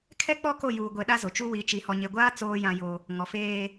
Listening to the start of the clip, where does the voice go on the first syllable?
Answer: high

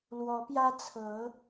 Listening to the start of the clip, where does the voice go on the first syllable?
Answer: rising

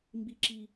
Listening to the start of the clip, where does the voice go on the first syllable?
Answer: high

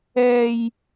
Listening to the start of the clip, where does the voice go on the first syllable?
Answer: high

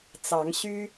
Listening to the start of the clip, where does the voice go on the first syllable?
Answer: rising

